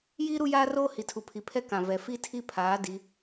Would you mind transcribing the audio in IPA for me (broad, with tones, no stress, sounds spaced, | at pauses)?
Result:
j iː˦ ɾ u˦ j aː˦ r oː˦ h i˨ tʰ u˨ pʰ i˨ pʰ ɛ˦ k ã˨ v ɛ˨ f i˦ tʰ i˦ pʰ aː˨˦ d i˨˦